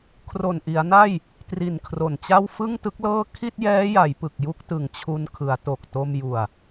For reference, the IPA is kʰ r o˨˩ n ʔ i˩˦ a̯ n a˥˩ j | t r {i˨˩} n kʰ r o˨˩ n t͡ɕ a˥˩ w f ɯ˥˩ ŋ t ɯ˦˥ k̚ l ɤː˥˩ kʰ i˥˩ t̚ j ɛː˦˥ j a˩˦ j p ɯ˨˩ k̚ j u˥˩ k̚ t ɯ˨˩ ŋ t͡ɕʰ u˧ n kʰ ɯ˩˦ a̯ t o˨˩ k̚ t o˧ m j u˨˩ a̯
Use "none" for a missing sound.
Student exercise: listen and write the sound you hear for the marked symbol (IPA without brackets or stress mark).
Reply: i˨˩